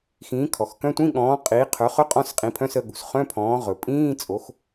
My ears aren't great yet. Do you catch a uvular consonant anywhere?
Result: yes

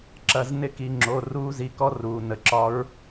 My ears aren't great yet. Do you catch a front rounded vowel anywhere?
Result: no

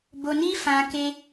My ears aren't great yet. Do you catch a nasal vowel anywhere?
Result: yes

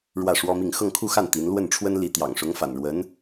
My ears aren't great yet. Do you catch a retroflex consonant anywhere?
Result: yes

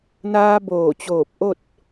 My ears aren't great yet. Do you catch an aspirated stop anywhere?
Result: no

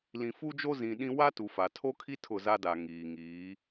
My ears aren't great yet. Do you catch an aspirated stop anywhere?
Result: yes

